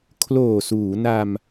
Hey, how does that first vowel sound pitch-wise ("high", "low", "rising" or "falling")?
low